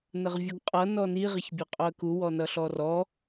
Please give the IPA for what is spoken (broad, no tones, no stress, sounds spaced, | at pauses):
n ə ʁ vʲ u ɡ qʼ ʌ n ɔ n i ʁ ɪ ç bʲ e qʼ o ə̯ k u w ɔ n ʌ ɬ ɔ r ɔ